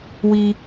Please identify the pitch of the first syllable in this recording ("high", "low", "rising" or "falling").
high